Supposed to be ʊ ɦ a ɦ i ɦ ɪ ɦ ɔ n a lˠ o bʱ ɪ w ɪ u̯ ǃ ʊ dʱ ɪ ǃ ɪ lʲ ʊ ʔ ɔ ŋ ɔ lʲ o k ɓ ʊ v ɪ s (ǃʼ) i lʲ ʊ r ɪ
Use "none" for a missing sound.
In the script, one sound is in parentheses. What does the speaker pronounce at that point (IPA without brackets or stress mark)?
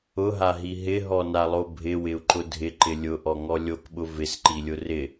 ǃ